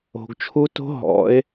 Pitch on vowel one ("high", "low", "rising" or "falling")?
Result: low